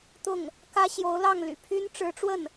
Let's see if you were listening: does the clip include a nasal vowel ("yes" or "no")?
no